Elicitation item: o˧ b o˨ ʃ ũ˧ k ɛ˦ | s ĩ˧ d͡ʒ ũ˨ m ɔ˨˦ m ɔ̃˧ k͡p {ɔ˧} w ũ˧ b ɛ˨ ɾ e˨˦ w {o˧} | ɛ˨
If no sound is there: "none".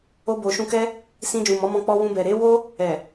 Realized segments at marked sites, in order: ɔ˧, o˦

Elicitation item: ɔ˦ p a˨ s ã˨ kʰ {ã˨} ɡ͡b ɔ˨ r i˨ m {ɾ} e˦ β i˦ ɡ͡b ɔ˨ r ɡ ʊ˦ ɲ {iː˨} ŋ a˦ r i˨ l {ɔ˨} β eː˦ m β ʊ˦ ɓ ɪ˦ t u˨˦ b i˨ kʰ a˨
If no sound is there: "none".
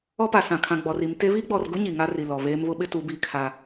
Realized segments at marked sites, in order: ã˨, t, i˨, ɔ˨

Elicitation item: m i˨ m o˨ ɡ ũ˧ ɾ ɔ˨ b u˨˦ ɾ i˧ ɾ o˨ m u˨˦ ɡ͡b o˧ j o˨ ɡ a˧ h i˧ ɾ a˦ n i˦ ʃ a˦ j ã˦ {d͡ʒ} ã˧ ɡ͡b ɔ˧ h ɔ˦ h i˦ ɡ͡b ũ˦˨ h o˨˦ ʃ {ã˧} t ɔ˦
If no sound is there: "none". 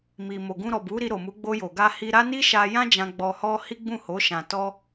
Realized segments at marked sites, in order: d͡ʒ, ã˧

